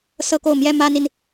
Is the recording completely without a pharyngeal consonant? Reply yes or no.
yes